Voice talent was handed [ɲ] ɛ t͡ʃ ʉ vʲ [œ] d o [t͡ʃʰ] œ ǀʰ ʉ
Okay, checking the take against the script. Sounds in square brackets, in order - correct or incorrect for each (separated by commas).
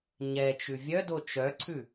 correct, correct, incorrect